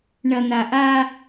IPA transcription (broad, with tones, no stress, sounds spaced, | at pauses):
ɳ ɐ˨ n̪ a˨ ʔ a˦